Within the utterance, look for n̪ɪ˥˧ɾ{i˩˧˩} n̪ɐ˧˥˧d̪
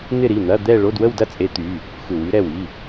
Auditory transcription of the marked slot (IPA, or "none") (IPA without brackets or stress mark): i˩˧˩